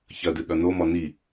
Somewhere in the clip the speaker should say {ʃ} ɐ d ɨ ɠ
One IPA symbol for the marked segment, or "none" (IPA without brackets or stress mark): ç